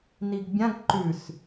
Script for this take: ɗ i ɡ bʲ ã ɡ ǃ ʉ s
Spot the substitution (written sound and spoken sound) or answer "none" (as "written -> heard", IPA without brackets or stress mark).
ɗ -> n